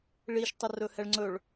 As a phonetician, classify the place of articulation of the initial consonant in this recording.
retroflex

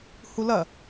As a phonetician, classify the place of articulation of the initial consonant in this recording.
glottal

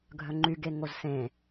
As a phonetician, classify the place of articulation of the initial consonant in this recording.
velar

